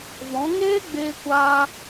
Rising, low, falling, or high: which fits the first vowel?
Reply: rising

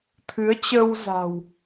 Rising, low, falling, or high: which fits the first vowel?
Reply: rising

